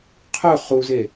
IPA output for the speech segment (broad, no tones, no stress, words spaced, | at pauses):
qʰɵ χuze